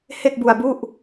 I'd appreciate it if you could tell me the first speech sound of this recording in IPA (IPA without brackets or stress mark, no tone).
h